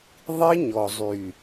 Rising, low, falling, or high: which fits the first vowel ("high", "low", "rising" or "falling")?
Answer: high